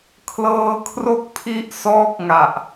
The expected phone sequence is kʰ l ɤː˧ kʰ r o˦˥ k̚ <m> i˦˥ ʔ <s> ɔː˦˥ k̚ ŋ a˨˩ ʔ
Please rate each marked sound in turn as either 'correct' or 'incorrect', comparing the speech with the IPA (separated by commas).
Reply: incorrect, correct